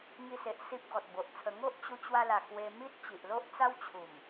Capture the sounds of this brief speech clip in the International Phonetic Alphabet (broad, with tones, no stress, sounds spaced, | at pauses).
ŋ i˧ s e˨ ʔ s i˦ p̚ ɡ ɔ˨ t̚ b o˨ ʔ t͡sʰ ə˧ ŋ o˦ ʔ t͡ɕ u˧ t͡ɕ w a˧ l a˨˩ k w e˧ m i˦ t̚ t͡ɕ i˨ ʔ l o˦ ʔ t͡s a˦ w t͡ɕʰ u˨˩ m